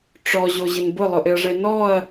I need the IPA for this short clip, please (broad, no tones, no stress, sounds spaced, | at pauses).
ʈ͡ʂ ɔ ʑ o ʑ ɪ n b ʊ lˠ ʊ ʔ ɪ ɐ̯ ʐ e n ɔ ɐ̯